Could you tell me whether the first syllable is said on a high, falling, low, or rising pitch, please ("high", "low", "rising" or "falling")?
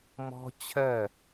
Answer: high